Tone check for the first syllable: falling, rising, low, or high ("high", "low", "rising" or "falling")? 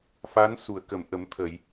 rising